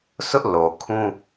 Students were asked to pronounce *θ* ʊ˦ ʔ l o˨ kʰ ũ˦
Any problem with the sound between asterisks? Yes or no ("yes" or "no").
yes